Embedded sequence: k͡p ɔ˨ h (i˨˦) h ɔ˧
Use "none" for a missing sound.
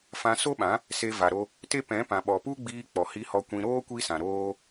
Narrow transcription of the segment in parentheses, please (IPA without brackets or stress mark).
i˧